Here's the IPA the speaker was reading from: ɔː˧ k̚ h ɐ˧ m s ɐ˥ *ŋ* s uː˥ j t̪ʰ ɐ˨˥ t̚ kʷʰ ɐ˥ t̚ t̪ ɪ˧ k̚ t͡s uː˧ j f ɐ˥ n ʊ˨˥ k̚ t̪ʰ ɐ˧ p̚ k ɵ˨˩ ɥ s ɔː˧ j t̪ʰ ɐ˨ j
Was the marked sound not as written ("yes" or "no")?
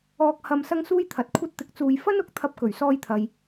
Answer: no